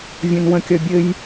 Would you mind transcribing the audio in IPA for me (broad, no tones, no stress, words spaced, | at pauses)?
vʲõnwə̃kʲʌ bʲɘj